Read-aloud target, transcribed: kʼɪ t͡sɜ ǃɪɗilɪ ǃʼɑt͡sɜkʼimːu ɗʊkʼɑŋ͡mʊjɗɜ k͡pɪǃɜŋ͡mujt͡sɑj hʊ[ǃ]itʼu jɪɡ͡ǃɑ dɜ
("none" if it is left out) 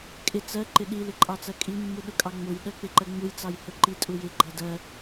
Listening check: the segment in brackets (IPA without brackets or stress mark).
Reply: ǃ